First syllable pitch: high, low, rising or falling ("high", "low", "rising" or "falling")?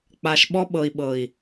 low